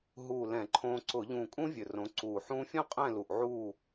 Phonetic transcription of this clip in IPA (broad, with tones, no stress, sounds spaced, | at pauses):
ɦ uː˧˩ l ɛ̃˧˩˧ ǃʰ õː˧ ǀ ʊ˧˩˧ ʎ ũ˧˩ kʼ ũ˥ vʲ ɵ˧˩ r õ˨˥ ǀ uː˧˩ ħ ũː˥ fʲ õ˥ qʼ ɛ̃˥˨ l u˧˩ ʔ ʕ uː˥˨